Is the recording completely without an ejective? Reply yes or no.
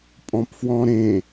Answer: no